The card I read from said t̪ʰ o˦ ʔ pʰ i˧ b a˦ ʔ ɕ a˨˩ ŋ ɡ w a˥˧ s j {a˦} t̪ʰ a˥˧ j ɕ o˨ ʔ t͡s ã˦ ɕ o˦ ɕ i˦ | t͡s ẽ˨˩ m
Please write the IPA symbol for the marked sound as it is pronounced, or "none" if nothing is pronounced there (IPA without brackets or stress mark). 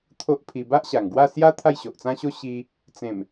a˦